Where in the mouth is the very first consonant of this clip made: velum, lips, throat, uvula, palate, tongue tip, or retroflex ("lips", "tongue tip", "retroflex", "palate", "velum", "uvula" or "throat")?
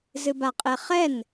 tongue tip